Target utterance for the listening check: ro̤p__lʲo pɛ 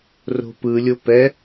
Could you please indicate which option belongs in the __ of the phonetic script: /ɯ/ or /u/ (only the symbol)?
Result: ɯ